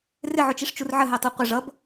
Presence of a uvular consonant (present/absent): present